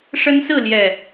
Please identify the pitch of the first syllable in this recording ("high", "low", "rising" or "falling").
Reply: high